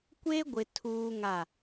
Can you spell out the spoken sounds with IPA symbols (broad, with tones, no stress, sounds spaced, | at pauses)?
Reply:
kʷ e˦ ɡʷ ɪ˨ tʰ uː˦ ŋ a˦˨